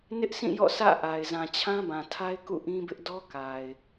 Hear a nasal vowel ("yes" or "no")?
yes